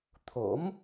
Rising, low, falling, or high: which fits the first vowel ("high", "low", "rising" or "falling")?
rising